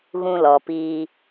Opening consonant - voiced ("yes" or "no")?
yes